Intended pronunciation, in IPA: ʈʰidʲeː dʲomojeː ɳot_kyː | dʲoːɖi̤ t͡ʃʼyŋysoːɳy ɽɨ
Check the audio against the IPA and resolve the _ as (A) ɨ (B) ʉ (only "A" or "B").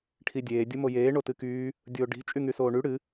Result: A